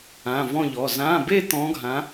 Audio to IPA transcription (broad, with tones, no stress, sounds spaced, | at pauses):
ã˩˧˩ v ɔ̃˦˨ ʎ ɔ˩˧˩ z ã˩˧˩ b e˦˨ t̪ ɔ̃˨˦ ɡʱ ã˨˦